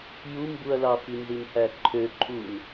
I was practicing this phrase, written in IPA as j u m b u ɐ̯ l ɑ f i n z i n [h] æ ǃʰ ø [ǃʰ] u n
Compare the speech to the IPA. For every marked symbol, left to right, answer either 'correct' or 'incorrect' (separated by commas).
correct, correct